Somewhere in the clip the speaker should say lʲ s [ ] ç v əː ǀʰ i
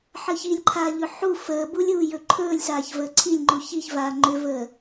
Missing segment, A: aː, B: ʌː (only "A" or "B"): A